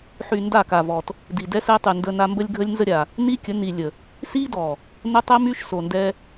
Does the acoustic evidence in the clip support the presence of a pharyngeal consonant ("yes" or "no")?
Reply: yes